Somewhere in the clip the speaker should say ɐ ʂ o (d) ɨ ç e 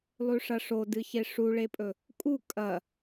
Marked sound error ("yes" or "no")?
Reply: no